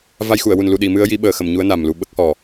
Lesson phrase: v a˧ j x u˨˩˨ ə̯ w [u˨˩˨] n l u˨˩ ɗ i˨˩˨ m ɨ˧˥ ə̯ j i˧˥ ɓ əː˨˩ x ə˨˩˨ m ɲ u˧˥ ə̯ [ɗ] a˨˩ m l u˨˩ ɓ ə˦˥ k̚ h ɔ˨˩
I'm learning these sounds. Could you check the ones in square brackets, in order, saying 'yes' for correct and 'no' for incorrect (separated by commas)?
no, no